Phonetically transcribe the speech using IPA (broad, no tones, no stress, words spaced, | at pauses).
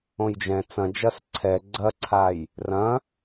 õjd͡ʒɛ̃ t͡sɐ̃d͡ʒɐs ǀʰɛ ɡ͡ǀɐǀʰaj | rɐ̃